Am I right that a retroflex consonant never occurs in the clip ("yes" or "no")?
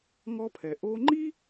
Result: yes